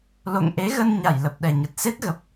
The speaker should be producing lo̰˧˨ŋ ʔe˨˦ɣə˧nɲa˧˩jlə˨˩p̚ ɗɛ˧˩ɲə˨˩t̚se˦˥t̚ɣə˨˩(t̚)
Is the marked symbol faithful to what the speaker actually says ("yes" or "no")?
no